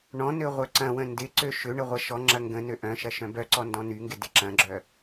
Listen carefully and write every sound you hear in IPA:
ɳɔ̃nø ʁʷœǀɐ̃wə̃ ndɪǀø ʃʏ ɳəʁʷɐʃɔŋ͡ǁɐ ŋɡə̃ nøʔœ̃ʃɐ ʃœ̃bœǀɔ ndɔ̃nyŋɡɪ dɪǁɐ̃ɡ͡ǁœ

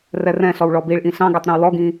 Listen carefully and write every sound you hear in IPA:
rɛrɛ̃ɬɔw ɭɔbiɭʔĩ ɬɑ̃ɡætˤ ɾɛ̃wlɔɡĩ

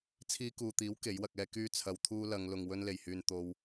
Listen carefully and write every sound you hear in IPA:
t͡sʰiː˧kuː˨t̪iː˨˥w ke˨˥jwɐ˧k̚ɛː˥ kyː˧t͡sʰɐ˨wt̪ʰuː˧ lɐ˨˧ŋlʊ˨ŋ wɵ˧nle˨˩jhyː˨n t̪o˧w

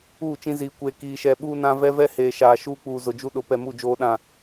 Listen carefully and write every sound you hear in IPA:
uː˦˨t͡ʃĩ˦ ziː˨kʷeː˨ kiː˨ʃɛ˨ ɓuː˦nã˦ vɛ˦vɛ˦heː˨ʃaː˨ ʃuː˦k͡puː˨ zʊ˨d͡ʒu˦ɗʊ˨˦ pɛ˨mu˦˨ d͡ʒoː˦ɗã˦˨

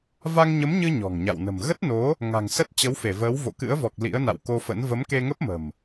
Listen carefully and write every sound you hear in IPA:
va˧ŋɲə˨˦mɲɨ˧ ɲɔ̤˨˩ŋɲa̰˧˨wnə̤˨˩m ɣə˦˥t̚no˨˦ | ŋa̤˨˩ŋ sə˦˥t̚t͡ɕə˨˦wfe˧˩vəː˨˦w vo̰˧˨kɨ̰˧˥ə̯vɔ˨˩k̚ lḭ˧˥ə̯na̰˧˨wko˧fə̰˧˥n və˨˦mke˧ŋə˦˥p̚mə̤˨˩m

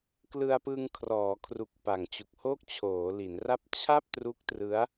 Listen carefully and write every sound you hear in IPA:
klɯ˧a̯pɯ˧ŋkʰrɔː˩˦kʰru˨˩k̚ pa˨˩ŋt͡ɕu˨˩k̚ho˥˩k̚ t͡ɕʰoː˩˦li˩˦nra˥˩p̚ t͡ɕʰa˥˩p̚ tru˦˥k̚trɯ˦˥a̯

